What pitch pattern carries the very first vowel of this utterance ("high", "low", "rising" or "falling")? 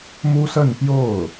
high